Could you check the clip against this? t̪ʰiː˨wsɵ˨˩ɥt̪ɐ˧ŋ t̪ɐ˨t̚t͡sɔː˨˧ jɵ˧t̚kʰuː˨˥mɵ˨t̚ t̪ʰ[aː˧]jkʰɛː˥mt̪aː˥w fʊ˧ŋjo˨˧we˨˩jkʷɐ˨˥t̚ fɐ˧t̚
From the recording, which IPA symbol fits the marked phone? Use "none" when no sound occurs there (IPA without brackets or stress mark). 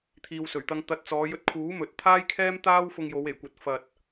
aː˥